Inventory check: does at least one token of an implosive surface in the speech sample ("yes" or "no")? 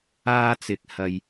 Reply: no